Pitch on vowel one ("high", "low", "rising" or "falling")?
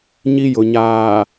high